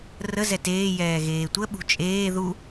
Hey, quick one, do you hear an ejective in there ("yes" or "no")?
yes